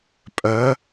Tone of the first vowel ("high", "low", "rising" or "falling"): rising